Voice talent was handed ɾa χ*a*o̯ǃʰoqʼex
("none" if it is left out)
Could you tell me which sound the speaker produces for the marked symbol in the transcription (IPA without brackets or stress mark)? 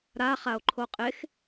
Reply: a